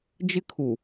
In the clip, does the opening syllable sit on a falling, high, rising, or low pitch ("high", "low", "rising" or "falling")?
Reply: high